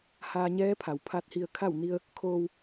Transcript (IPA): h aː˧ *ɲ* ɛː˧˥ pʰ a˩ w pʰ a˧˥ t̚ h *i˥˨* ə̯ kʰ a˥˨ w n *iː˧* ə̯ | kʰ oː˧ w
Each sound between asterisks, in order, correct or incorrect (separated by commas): correct, incorrect, incorrect